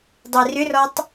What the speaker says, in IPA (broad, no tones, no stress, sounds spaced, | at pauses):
dˤ e r ʏ r ɔ tˤ